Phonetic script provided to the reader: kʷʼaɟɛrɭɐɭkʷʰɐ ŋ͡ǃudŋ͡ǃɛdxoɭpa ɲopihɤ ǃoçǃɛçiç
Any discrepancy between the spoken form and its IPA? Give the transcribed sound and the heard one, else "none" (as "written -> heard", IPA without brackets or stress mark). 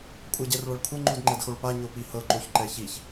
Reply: none